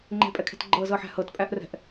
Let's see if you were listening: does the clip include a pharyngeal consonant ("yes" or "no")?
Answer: yes